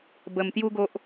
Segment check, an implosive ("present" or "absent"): absent